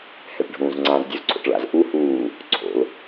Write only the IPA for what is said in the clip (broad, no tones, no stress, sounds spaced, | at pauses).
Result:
h ɛ ʈ ɖʱ ũː z ŋ͡ǀ ã z dʲ u z ǀʰ o̰ ʈ ɭ a̰ z ʔ u h uː | ǀʰ o̰ l